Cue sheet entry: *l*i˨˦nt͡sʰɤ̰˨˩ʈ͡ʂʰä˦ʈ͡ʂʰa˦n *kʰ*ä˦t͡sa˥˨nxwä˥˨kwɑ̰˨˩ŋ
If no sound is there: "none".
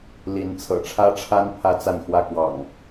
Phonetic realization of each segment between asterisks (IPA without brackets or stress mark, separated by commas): l, pʰ